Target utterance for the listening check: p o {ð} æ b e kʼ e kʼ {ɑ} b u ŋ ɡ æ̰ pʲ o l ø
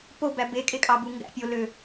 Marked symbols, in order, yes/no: no, yes

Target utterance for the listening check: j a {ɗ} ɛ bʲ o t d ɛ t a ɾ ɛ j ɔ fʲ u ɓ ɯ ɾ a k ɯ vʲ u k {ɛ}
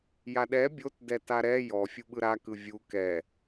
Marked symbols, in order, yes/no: yes, yes

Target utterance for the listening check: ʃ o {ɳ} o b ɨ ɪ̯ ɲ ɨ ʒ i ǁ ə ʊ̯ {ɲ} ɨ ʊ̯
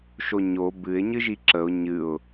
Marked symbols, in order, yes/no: no, yes

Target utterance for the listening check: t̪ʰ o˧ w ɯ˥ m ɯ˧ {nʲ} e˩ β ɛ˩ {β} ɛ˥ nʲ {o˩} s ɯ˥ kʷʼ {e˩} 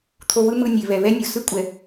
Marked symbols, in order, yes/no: yes, yes, yes, no

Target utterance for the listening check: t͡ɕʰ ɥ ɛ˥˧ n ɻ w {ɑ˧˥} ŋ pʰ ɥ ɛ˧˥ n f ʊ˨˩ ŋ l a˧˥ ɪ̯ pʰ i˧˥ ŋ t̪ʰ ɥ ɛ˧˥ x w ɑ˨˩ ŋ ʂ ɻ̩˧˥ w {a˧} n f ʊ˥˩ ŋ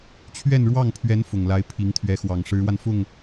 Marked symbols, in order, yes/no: no, yes

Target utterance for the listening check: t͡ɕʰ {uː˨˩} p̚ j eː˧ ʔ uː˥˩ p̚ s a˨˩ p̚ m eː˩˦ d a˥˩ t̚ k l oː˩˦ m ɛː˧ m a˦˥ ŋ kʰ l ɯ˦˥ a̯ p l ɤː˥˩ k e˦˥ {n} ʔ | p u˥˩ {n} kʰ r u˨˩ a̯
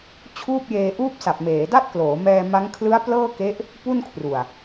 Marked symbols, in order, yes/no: no, no, yes

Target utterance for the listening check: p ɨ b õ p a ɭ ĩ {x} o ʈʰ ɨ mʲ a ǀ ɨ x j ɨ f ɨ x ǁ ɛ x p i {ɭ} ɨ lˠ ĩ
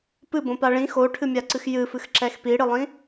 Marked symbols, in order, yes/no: yes, no

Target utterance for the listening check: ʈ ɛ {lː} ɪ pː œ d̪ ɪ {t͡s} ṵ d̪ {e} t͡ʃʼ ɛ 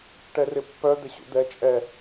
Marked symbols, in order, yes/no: no, no, no

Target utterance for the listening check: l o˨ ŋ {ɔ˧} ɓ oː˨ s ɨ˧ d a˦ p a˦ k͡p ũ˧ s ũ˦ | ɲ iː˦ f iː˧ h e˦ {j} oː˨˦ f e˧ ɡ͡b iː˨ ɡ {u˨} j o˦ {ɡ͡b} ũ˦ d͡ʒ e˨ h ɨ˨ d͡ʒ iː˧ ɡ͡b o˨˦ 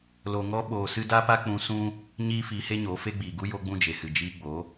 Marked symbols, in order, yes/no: yes, no, no, yes

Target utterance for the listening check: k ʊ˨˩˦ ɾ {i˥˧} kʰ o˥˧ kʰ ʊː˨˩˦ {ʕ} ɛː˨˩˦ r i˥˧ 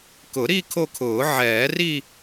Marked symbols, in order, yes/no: yes, yes

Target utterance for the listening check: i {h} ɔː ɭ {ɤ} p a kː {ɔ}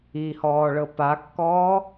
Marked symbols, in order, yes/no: yes, yes, no

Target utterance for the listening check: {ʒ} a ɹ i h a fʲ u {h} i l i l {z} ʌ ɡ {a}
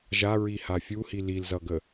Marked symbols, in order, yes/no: yes, yes, yes, no

